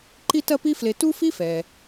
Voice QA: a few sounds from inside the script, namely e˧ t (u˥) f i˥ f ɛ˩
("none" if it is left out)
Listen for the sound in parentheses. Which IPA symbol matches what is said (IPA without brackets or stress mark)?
u˥